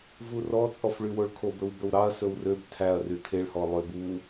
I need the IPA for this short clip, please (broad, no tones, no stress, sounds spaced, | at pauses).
v u r ɔ t͡sʼ ɔ f ɭ y w o ɭ kʰ o b ɵ w b ɵ w ɾ ɑ ɐ̯ s ɵ w r ø b tʰ æ ɐ̯ r y tʰ e ɭ h ɔ lˠ ø b u